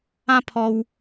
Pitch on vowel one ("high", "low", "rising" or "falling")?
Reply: high